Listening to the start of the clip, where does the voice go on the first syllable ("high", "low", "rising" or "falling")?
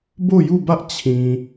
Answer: falling